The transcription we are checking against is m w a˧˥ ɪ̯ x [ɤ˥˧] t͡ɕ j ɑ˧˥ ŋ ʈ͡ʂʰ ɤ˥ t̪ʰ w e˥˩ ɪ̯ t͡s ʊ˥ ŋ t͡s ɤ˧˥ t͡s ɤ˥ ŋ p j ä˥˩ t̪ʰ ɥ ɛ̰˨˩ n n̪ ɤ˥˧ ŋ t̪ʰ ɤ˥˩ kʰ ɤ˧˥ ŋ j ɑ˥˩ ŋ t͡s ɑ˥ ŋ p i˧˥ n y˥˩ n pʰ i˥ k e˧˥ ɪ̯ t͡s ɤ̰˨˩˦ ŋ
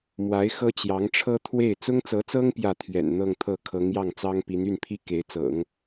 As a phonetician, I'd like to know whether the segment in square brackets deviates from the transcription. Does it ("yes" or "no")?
yes